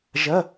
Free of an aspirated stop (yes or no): yes